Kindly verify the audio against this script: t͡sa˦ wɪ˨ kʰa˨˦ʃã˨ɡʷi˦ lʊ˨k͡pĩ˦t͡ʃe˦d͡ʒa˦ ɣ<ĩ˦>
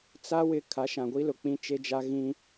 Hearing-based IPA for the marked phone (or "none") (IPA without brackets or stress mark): ĩ˦